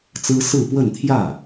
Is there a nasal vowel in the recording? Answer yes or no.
no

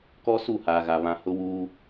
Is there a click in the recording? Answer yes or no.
no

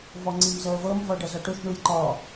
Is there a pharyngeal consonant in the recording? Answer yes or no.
no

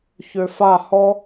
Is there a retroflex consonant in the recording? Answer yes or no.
no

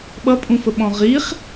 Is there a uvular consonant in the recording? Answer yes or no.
yes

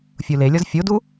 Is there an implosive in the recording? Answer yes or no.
no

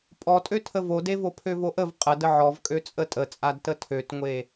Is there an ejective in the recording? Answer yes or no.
yes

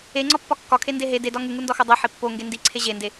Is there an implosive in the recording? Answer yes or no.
no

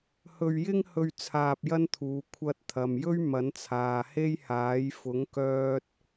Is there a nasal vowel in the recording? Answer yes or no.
no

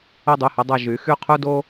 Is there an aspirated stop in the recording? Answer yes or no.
yes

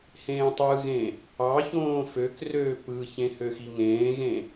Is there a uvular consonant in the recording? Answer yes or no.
no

